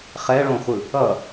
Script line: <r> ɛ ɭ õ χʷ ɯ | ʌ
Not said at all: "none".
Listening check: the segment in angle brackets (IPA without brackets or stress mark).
χ